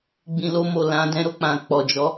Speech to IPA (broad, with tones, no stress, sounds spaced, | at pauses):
ɡ͡b ĩ˨ l o˧ m o˨ l ã˨˦ d ɛ̃˧ ɾ o˧ k͡p ã˨ k͡p ɔ˨ d͡ʒ ɔ˨˦